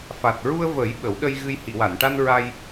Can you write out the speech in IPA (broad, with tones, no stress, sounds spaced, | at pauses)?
f a˨˩ t̚ ɹ u˧ ə̯ v əː˨˩˦ j ɓ ə˨˩˦ w ɗ ə˧ j ɣ ɨ˧ j h i˨˩˨ w a˨˩˨ n ʈ a˧ n ɹ a˧ j